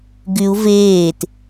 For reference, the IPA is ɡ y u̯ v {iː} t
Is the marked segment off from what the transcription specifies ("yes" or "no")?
yes